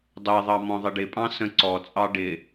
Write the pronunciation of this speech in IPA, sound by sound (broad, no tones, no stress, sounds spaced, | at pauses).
dˤ ɛ ðˤ ɑ m ɔ̃ ðˤ ɪ ɖ ɪ pʼ ɑ̃ s ə̃ ǀ ɔ t͡sʼ ɑ ɖ ɪ